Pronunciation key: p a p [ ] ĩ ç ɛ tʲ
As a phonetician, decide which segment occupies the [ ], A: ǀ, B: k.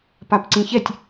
A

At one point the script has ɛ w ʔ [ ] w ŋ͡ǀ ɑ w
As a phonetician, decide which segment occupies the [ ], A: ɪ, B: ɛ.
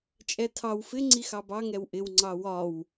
A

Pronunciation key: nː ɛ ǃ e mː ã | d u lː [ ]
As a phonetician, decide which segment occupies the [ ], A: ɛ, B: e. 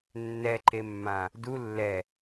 A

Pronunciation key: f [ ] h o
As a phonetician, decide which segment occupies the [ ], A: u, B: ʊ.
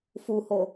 A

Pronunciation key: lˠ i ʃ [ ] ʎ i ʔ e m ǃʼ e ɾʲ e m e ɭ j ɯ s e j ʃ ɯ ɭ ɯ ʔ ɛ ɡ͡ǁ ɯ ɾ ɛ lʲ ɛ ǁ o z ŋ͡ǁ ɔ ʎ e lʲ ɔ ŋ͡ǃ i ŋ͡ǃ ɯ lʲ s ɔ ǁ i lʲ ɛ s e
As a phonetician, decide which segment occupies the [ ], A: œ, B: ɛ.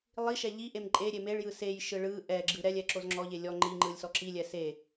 B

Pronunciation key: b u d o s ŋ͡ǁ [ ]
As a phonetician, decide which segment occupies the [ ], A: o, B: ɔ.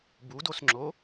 A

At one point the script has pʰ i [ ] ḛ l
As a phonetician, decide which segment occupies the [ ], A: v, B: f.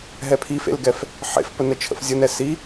B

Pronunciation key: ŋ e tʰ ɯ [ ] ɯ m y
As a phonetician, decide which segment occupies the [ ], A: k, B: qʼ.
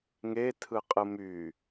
B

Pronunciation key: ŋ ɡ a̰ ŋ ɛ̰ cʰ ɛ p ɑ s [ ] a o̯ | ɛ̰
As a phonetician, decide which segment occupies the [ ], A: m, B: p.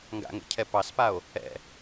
B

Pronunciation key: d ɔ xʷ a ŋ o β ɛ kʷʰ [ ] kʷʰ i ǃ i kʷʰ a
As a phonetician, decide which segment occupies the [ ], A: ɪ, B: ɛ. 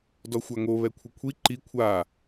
A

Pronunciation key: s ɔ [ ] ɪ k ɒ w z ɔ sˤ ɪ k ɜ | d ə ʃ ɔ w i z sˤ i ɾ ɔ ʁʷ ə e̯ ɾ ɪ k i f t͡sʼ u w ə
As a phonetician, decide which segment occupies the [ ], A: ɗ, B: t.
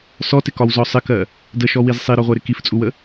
B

